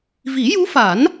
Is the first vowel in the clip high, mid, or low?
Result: high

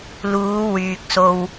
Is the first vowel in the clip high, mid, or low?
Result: high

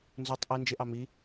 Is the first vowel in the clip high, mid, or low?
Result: high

